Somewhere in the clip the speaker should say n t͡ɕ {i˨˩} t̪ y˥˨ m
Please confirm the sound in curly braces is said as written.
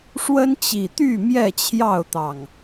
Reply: yes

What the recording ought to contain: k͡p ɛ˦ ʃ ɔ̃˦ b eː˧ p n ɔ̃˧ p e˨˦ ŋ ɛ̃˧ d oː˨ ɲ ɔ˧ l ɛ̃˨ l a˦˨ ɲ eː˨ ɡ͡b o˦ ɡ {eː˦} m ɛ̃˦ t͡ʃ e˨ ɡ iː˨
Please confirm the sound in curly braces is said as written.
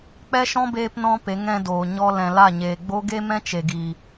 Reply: no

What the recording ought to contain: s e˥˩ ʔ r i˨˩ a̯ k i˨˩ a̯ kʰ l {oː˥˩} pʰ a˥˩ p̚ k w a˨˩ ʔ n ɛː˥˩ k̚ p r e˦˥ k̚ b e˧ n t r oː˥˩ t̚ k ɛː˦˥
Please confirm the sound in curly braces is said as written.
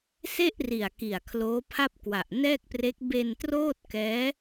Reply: no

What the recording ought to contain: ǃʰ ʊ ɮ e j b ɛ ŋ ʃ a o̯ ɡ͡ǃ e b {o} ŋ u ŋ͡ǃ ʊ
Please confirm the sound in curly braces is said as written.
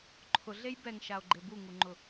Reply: no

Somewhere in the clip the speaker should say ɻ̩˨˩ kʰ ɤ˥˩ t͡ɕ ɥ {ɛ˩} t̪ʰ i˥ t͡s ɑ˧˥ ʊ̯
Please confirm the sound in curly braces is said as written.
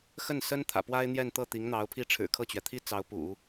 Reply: yes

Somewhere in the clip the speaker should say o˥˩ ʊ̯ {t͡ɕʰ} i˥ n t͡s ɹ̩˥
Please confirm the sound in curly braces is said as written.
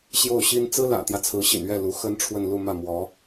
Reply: no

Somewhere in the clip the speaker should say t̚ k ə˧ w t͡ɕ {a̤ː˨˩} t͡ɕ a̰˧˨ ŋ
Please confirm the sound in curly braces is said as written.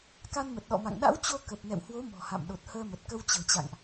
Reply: no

